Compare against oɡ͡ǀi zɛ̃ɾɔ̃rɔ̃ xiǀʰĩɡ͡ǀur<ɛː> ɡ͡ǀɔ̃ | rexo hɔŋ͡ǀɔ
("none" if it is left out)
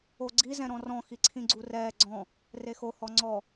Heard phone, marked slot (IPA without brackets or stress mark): ɛː